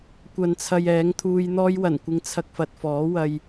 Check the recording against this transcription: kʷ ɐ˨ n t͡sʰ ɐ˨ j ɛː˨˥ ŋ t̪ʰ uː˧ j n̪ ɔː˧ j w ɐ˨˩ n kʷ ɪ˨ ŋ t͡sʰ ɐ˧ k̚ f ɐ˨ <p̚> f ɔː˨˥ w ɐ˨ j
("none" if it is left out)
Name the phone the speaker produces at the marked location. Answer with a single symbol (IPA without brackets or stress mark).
t̚